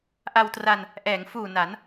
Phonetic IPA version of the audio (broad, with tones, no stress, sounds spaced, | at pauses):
ʔ a˧ w t r a˧ n | ʔ ɛː˩˦ ŋ f uː˨˩ n a˩˦ n